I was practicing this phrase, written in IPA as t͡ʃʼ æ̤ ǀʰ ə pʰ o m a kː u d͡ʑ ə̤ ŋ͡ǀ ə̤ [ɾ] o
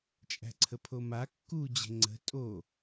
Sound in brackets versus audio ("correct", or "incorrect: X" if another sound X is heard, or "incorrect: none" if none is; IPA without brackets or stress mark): incorrect: tʼ